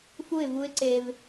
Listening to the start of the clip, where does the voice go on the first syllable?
falling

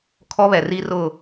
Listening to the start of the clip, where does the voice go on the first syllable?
high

